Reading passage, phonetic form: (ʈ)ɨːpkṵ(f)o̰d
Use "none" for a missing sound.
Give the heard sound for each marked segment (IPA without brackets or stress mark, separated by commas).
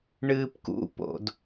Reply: ɳ, p